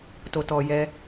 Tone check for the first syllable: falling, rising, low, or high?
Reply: low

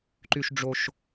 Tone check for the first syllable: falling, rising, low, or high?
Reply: low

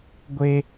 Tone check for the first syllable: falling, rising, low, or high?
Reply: high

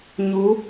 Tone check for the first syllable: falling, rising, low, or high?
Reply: rising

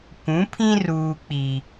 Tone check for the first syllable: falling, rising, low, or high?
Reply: rising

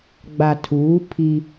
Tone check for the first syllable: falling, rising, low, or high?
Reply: low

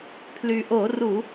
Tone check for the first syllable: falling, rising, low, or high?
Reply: low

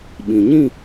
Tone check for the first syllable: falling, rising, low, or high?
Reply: low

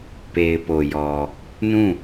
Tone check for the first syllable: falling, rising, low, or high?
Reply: low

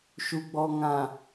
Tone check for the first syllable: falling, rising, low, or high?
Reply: low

